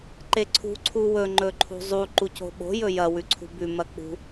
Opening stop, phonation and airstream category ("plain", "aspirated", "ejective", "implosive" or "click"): click